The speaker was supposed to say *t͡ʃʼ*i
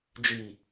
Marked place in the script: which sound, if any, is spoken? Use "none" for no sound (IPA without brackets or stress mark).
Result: d͡ʒ